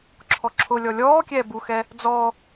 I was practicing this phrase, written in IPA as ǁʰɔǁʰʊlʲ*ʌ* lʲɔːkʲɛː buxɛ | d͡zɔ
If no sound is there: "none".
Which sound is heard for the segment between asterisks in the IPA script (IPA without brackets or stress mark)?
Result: ɔ